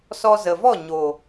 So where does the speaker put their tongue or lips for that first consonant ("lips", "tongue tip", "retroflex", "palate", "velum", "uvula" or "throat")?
tongue tip